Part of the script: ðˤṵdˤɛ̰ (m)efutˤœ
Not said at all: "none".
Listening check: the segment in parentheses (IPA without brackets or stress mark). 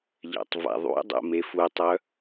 m